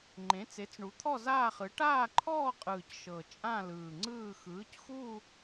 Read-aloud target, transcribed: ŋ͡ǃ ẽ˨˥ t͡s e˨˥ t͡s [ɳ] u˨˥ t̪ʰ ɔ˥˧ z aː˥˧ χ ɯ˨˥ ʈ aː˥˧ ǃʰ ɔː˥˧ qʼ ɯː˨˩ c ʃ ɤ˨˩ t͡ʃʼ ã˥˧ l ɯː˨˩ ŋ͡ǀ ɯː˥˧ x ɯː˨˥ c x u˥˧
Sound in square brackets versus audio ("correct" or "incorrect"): correct